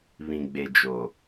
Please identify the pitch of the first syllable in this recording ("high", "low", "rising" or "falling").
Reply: low